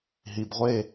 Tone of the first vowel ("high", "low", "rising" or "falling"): low